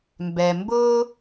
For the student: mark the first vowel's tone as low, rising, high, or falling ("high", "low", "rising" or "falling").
low